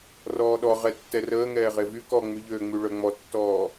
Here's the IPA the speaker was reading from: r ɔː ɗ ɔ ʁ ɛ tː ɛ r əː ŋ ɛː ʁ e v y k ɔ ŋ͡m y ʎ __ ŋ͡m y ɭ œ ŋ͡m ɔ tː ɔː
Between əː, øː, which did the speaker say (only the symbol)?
øː